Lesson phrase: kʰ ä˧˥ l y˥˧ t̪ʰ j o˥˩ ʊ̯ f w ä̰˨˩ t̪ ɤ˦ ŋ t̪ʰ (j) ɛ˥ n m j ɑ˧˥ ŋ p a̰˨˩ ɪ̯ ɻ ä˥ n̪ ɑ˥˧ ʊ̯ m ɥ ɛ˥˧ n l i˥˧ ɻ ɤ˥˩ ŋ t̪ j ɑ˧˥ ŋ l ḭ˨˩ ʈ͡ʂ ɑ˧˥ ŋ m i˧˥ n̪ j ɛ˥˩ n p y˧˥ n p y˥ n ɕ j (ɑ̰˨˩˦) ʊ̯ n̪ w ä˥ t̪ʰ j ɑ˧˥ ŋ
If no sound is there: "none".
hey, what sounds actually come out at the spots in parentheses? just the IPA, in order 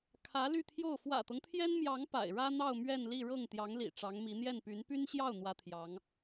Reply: j, ɑ˥˩

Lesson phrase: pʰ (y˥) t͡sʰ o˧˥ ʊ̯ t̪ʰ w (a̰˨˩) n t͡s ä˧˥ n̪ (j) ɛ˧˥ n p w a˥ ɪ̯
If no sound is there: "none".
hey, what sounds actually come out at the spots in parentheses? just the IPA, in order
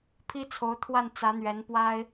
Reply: i˥, a˥˩, ɥ

